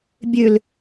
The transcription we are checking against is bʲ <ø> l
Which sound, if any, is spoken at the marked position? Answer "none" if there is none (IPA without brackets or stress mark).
ø